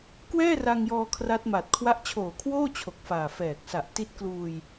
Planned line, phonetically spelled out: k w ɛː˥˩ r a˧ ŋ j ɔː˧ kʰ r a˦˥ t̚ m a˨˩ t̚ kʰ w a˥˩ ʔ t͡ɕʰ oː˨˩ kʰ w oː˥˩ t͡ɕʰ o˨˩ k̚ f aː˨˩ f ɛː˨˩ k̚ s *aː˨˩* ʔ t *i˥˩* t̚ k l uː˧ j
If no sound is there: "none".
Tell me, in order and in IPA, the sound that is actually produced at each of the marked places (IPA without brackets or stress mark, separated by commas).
a˨˩, i˦˥